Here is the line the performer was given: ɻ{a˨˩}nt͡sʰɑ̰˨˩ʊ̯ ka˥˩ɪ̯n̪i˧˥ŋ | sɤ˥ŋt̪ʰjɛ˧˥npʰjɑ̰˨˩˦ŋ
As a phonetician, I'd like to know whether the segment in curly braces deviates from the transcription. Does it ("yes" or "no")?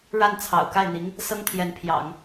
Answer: yes